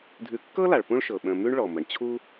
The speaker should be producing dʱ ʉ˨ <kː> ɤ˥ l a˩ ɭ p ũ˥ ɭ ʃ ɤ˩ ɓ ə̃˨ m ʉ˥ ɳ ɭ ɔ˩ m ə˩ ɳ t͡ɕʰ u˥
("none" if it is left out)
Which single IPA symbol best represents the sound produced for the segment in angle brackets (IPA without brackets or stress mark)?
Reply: kː